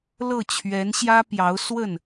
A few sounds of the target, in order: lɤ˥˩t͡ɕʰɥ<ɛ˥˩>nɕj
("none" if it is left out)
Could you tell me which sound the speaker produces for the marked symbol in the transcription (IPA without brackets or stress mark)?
ɛ˧˥